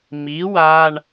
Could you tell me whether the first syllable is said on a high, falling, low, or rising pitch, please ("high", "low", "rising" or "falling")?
rising